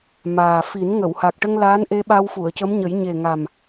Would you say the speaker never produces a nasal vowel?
yes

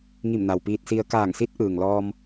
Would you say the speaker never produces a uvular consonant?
yes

